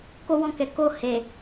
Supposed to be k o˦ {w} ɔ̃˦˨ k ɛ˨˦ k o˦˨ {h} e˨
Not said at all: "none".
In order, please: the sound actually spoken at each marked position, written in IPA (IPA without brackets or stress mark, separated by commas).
w, h